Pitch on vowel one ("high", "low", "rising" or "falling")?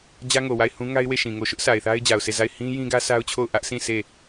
high